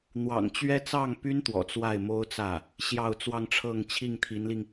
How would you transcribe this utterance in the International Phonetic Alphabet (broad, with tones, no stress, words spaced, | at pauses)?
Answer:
n̪wɑ̰˨˩ŋ t͡ɕɥɛ˥ t͡sɑ˥˩ŋpy˥nt̪wɔ̰˨˩ t͡swa˥˩ɪ̯mo˥ʊ̯t͡sä˥˩ | ɕjɑ˥˧ʊ̯t͡swɑ˥˧ŋʈ͡ʂʰɤ˥˧ŋ t͡ɕʰi˥˩ŋt̪ʰi˧˥nli˧ŋ